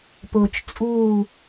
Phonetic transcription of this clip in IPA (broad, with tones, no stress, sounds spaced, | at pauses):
p ʊː˨ t͡ʃ t͡sʼ uː˦˨